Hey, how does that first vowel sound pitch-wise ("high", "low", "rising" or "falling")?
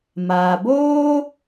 low